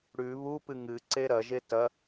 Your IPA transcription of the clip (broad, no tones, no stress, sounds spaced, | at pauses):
ɽ ʉ β u p ɨ ŋ ɨ ǀ e ɾ ɐ ʒ e t ɐ